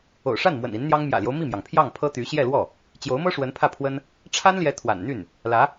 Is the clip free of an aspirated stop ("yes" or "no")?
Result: no